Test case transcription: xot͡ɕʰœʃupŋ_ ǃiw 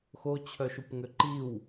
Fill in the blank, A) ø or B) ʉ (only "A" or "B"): A